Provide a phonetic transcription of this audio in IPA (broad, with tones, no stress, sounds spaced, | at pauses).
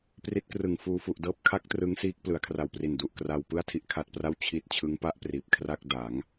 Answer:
p r i˦˥ t̚ k r ɯ˨˩ ŋ f uː˧ f u˨˩ ʔ d ɤː˦˥ p̚ kʰ a˦˥ k̚ t r ɯ˦˥ ŋ s iː˦˥ k̚ p l ɯ˩˦ a̯ kʰ r a˨˩ w p r i˨˩ n d u˨˩ ʔ k r a˧ w p ɯ˥˩ a̯ tʰ i˥˩ ʔ kʰ a˦˥ t̚ p r a˥˩ w t͡ɕʰ i˥˩ t̚ t͡ɕʰ ɯ˦˥ ŋ p a˦˥ ʔ p r iː˨˩ p̚ kʰ r a˥˩ k̚ d a˩˦ ŋ